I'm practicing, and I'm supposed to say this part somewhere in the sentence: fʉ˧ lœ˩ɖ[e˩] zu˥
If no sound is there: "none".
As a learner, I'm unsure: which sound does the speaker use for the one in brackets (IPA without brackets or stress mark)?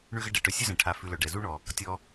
ɛ˩